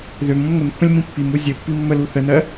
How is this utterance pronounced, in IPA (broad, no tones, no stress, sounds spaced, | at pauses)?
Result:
ð ø m ũ m ŋʷ ə n pː ə̃ lʲ m ĩ pː i m u zʲ ɘ pː i mː ə l u θ ə n ɜ